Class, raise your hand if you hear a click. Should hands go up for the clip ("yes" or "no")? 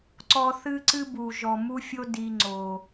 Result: yes